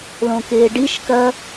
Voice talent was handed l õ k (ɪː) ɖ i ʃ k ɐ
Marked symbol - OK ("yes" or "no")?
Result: yes